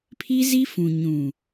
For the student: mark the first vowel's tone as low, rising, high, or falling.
high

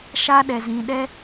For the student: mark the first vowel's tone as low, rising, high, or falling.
high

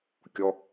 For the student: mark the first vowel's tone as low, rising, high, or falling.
high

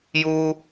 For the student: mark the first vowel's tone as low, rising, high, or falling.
high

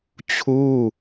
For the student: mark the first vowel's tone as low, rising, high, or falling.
falling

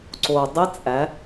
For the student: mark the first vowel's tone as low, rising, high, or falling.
low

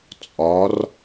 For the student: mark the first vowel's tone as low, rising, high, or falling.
rising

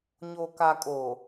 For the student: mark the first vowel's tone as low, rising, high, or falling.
low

